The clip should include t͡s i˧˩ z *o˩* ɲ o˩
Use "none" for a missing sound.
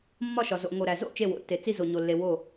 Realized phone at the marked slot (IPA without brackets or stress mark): o˩